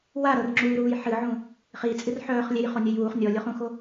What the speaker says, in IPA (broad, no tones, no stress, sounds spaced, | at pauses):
w a ɾ ɤ r ŋ͡ǁ uː ɾ uː j ħ ɨ ʕ ũ | χ i t͡sʼ ɨ r ħ œː χ lʲ e j χ o nʲ œ j uː χ nʲ ɔ lʲ o χ ũ x o